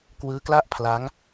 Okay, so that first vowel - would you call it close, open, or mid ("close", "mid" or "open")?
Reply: close